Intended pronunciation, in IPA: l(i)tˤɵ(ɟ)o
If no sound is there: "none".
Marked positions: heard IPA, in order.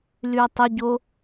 y, ɟ

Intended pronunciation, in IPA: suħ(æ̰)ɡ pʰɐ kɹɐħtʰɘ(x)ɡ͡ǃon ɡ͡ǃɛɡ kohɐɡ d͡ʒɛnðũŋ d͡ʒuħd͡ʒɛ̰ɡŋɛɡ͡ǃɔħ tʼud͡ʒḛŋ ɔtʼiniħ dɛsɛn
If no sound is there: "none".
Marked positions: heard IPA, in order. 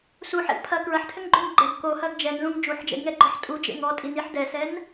ɛ̰, ŋ

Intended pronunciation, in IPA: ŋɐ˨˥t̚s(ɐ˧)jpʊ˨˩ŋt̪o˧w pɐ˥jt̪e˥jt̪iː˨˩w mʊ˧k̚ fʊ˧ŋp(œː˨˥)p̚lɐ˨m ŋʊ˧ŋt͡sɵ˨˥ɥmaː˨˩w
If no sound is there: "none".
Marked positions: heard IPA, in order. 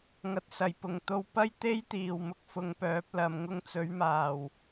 ɐ˨˩, œː˨˥

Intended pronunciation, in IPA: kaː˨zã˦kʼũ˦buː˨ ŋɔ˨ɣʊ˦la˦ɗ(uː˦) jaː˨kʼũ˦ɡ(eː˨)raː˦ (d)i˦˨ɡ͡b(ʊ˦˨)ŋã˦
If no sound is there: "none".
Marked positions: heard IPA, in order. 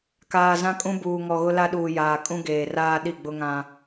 uː˨, eː˨, ɗ, ʊ˦

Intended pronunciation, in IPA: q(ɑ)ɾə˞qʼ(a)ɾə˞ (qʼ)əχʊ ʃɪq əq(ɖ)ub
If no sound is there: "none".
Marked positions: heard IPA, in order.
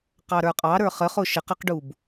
ɑ, ɑ, χ, ɖ

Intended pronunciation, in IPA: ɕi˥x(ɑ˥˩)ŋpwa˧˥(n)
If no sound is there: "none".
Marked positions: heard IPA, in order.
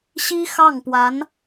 ɑ˥˩, n

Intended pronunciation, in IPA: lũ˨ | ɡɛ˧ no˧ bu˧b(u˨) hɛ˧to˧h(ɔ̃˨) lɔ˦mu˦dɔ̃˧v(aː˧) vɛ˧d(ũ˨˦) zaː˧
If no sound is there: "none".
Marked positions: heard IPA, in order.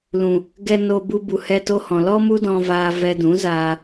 u˨, ɔ̃˨, aː˧, ũ˨˦

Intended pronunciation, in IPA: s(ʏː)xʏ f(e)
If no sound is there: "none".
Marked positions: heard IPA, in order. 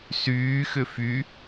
yː, y

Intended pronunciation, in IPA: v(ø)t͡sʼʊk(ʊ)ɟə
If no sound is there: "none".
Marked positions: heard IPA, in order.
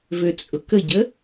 ø, ə

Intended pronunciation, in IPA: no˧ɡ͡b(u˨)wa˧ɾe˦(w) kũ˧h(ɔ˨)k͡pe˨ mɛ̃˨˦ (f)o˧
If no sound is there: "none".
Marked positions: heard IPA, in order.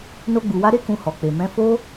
u˨, none, ɔ˨, f

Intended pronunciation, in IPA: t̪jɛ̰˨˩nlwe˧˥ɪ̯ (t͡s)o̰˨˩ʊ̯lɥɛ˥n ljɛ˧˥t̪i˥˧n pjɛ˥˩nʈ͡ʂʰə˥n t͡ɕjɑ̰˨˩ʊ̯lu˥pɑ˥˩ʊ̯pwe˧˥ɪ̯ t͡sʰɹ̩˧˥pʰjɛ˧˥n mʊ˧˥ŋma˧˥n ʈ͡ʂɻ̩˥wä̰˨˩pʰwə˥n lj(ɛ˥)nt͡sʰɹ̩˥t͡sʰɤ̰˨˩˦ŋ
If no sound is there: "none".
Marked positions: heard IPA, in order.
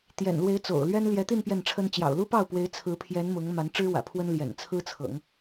t͡s, ɛ̰˨˩

